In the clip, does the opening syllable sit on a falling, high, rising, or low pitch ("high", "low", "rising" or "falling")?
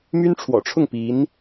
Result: high